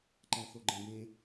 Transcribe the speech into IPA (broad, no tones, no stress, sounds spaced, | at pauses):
ǃ æ θ o ɡ͡ǃ ẽ b ẽ